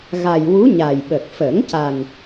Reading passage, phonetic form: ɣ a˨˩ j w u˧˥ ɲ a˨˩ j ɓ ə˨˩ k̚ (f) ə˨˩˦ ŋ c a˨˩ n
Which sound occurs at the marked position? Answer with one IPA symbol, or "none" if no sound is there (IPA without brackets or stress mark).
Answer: f